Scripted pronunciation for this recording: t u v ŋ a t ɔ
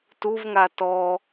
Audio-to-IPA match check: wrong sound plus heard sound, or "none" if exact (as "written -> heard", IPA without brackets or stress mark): none